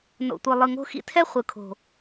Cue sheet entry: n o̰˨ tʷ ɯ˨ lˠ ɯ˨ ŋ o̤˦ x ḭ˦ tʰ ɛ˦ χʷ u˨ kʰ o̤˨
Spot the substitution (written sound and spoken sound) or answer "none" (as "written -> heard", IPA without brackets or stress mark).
u˨ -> ɯ˨